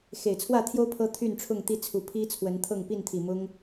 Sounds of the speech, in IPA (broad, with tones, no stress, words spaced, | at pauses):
xe˨˩ɪ̯t͡sʰwä˥˨t̪ʰjo˦ʊ̯ pʰɤ˦t̪ʰy˥˨nʈ͡ʂʰʊ˥˨ŋ t̪i˥˨t͡sʰu˨˩ pʰi˦ t͡sʰwə˨˦nt̪ʰɤ˥˨ŋ pi˥˨nt̪ʰi˨˩ mʊ˦ŋ